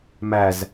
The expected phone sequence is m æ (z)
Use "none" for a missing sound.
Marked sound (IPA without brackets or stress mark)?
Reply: z